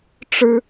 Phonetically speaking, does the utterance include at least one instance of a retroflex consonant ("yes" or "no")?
yes